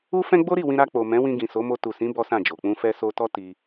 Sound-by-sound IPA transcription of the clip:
u˦ f ɛ̃˦ ɡ͡b o˦ ɾ i˦˨ w ĩ˧ ɾ a˧ k͡p o˨ m ɛ̃˨˦ w ĩ˧ ɡ ĩ˨ s o˨˦ m o˧ t u˨ s ĩ˨˦ b ɔ˦ s ã˦˨ d͡ʒ o˨ k͡p ũ˧ f ɛ˧ s o˧ t ɔ˦ t i˧

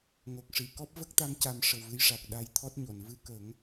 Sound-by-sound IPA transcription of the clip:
ŋ o˨˩ k̚ ʂ i˨˩˨ k ɔ˦˥ p̚ v ə˦˥ k̚ t̪ a˧˥ m c a˧ m ʂ ə˨˩ w v ɨ˧ j ʂ a˨˩ k̚ ɗ a˧ j t̪ʰ ɔ˦˥ t̚ ɲ o˨˩˨ n v ɨ˧ k ə˨˩˦ ŋ

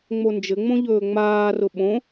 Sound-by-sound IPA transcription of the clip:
ŋ͡m o n d͡ʒ ɘ ŋ͡m õ ʎ ɵː ŋ͡m aː r ʊ ɓ õ

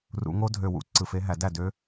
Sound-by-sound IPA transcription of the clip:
r ṵ˨˩˦ ŋ o˦˥ dʱ ø˨˩ w ṵ˦˥ ǀ ɯ˨˩ f e˦˥ ɦ æ˨˩˦ d æ˥˩ d ø˦˥

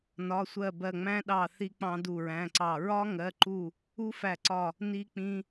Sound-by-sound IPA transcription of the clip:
n ɒ˩˧˩ sʷ ɜ˧˩ b ɜ˧˩ ŋ͡m æ̃˦˥ ɗ ɑ˧˩ θ i˧ k͡p ɑ̃˧ d u˧˩ ɹ æ̃˩˧˩ ǀ ɑ˧˩ ɹ ɒ˦˥ ŋ ɜ˩˧˩ ǃ u˧˩ | u˦˥ f æ˧˩ ǀ ɒ˧˩ | n i˧ k͡p ĩ˧

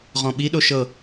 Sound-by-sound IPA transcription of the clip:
ʁ ɔ̃ ɓ i ɗ o ʃ ɤ

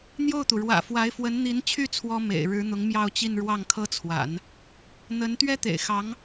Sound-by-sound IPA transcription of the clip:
n̪ j o˥˩ ʊ̯ t̪ u˩ ɻ w ä̰˨˩ f w a˧˥ ɪ̯ f w ə˧˥ n n̪ i˧˥ n t͡ɕʰ y˥˩ t͡sʰ w ɔ˥ m ḛ˨˩ ɪ̯ ɻ ɻ̩˧˥ n̪ ʊ˧˥ ŋ m j ɑ˥˧ ʊ̯ t͡ɕ i˥˧ n ɻ w ɑ˥˩ ŋ kʰ ɤ˥ t͡sʰ w a̰˨˩˦ n | n̪ ə˧˥ n t̪ ɥ ɛ˥ t̪ ḛ˨˩ ɪ̯ x ɑ˧˥ ŋ

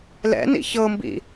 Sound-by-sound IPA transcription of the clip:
l ɛ̰ n ḭ ç ɤ m b ḭ

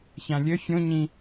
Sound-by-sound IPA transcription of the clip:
ç ã lʲ ɘ fʲ õ ɲ ĩ

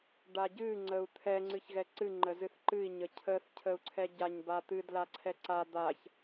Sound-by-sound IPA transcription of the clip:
ɖ a ɟ ɨ ŋ͡ǀ ə u̯ t̪ʰ ɛ ŋ͡ǀ ɨ ç ɣ ɛ ǀ ɨ ŋ͡ǃ ə z ɨ θ ǃ ɨ i̯ ɲ ə cʰ ə θ cʰ ə u̯ ǀʰ ɛ ɟ a ɲ b a t̪ ɨ d l a ǀʰ ɛ ǀ a d̪ a ç

